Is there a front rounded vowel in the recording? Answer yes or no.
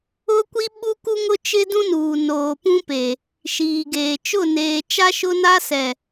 no